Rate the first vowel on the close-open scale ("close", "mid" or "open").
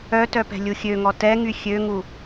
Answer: mid